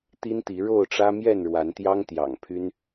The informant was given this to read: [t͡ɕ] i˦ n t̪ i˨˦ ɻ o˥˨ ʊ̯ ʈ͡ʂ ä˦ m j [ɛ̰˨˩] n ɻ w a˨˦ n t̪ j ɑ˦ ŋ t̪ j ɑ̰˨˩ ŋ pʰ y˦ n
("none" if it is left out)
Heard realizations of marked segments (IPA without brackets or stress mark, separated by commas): t̪, ɛ˥˨